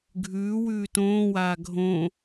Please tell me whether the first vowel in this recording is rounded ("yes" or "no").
yes